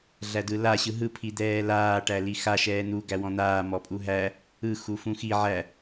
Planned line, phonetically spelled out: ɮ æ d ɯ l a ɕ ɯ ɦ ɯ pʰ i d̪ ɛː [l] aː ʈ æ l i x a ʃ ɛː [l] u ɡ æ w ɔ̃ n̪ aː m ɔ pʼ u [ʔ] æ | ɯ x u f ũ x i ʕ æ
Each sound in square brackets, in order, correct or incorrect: correct, incorrect: n̪, incorrect: ɦ

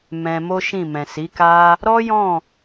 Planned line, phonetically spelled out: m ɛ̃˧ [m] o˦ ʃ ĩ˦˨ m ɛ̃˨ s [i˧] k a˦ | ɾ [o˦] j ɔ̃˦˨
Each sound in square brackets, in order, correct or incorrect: correct, incorrect: i˨˦, incorrect: ɔ˦

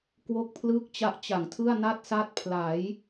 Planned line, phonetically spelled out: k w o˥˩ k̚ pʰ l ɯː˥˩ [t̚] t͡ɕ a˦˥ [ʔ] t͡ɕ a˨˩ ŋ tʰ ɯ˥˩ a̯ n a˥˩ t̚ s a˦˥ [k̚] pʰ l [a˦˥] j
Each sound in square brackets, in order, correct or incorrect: incorrect: k̚, correct, incorrect: t̚, incorrect: a˩˦

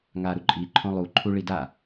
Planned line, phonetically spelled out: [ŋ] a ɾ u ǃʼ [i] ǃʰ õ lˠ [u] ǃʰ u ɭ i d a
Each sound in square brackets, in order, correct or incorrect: correct, correct, correct

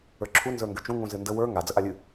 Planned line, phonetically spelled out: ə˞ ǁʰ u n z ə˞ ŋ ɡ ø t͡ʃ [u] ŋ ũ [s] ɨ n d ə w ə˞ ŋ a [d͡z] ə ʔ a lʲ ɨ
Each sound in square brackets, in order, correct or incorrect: incorrect: ũ, incorrect: z, correct

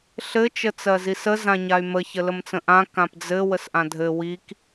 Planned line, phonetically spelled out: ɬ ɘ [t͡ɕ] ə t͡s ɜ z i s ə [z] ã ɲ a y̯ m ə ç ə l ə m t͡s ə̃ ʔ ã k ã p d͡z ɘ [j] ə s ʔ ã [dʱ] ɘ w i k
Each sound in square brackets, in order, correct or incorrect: incorrect: t͡ʃ, correct, incorrect: w, correct

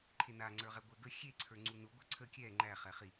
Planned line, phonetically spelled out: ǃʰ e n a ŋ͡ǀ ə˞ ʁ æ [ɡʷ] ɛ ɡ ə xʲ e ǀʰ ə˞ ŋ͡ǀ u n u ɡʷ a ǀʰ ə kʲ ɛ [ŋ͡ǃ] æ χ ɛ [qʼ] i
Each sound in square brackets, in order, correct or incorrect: correct, correct, incorrect: χ

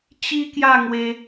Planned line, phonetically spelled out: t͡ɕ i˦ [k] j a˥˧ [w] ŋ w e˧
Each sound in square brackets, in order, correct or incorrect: correct, incorrect: none

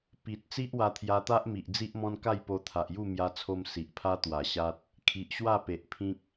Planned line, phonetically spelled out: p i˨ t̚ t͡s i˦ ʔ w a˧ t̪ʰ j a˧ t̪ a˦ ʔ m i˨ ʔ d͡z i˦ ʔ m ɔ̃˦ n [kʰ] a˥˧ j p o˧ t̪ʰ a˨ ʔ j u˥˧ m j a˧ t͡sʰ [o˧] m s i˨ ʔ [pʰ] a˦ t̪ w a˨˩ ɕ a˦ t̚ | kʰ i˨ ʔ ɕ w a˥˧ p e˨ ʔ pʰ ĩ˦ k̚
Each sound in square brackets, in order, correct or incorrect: incorrect: k, correct, correct

